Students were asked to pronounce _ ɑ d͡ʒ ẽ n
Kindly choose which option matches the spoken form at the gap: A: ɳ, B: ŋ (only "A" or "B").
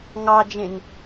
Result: B